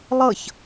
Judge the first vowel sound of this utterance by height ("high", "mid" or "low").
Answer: mid